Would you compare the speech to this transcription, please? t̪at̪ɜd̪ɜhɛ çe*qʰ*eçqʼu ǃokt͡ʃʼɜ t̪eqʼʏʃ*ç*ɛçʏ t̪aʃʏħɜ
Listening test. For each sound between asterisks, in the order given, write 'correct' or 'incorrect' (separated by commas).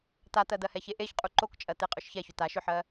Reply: incorrect, correct